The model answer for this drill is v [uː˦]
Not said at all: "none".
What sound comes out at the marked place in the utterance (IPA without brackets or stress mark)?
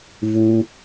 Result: u˦